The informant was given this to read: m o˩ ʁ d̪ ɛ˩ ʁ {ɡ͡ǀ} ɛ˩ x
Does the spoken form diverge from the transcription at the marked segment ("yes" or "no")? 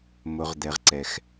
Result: yes